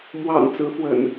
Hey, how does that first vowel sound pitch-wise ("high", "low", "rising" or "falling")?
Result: low